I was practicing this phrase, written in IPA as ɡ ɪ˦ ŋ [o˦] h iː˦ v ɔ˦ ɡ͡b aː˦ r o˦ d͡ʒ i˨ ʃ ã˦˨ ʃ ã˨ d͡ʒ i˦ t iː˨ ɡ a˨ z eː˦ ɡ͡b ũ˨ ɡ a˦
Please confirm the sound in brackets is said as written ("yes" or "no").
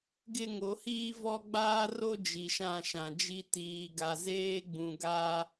no